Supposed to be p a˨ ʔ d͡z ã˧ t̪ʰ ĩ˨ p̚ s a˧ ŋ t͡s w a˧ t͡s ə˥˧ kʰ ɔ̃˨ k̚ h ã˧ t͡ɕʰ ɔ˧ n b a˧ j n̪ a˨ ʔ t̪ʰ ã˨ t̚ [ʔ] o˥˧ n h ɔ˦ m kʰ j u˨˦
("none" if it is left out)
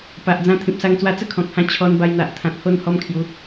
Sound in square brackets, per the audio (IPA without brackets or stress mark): h